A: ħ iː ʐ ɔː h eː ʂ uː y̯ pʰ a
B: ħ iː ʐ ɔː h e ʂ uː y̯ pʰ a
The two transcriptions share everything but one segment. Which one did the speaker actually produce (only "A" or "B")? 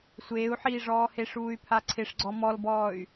B